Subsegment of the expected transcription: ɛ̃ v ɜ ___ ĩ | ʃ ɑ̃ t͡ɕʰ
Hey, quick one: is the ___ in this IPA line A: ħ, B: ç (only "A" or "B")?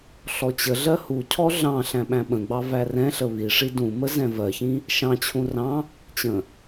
B